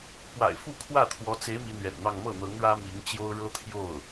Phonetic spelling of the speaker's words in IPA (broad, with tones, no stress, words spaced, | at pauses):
pwa̰˨˩ɪ̯fu˥˧kʰwä˥˩t̪ʰwɔ˧˥ t͡se˧˥ɪ̯ mi˧˥n̪ɥɛ̰˨˩nn̪ɑ˥˧ŋ mɤ˥˩n̪ɤ˧˥ŋ ɻä˥mi˧˥ŋt͡ɕjo˥ʊ̯ ɻɤ˥t̪ʰjo˥˩ʊ̯